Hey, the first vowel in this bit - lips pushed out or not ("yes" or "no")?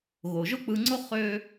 yes